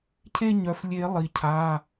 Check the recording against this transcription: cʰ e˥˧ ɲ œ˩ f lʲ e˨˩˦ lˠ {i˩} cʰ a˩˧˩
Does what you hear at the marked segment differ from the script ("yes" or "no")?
no